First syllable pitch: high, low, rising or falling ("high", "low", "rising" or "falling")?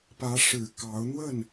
rising